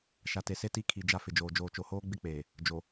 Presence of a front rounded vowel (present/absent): absent